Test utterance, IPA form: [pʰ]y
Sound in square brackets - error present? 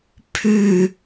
no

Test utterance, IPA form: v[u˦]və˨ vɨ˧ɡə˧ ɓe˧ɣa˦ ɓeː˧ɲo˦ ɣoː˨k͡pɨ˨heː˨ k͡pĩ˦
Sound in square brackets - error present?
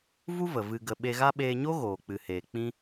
no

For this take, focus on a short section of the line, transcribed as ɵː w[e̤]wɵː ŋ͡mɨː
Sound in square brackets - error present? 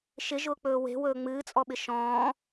no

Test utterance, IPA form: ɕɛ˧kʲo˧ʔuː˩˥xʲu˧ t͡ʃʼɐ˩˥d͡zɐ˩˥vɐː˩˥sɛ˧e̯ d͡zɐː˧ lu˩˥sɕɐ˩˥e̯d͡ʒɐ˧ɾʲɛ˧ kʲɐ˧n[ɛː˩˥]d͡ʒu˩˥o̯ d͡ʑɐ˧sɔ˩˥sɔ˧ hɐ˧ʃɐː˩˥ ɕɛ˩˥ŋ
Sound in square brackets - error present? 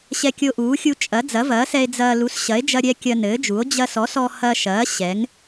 yes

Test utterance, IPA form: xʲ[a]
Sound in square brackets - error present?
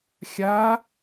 no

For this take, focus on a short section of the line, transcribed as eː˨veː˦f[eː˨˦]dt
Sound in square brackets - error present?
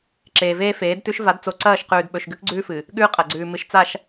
no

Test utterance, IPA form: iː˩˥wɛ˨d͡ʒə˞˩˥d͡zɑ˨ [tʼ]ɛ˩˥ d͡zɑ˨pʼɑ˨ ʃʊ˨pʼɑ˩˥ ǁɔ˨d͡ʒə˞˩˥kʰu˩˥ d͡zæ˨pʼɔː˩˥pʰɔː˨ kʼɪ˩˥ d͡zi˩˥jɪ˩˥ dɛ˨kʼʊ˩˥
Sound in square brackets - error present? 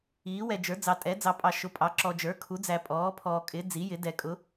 no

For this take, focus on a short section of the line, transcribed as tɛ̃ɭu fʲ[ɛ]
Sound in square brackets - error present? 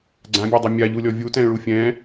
yes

